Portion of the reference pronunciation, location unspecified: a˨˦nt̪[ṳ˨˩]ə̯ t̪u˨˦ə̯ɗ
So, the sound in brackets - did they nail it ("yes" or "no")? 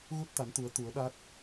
no